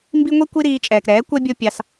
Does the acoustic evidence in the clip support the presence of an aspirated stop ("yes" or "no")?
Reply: no